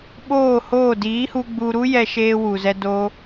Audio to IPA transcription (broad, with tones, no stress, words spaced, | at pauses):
ɓoː˦˨hoː˦˨ diː˨˦hu˧ ɡ͡bu˧ɾu˦ jɛ˧ʃeː˧ wu˨zɛ˧ do˦